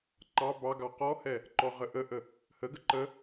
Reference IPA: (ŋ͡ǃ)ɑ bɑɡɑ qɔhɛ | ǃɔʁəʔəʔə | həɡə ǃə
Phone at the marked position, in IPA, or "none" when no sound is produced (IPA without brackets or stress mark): ǃ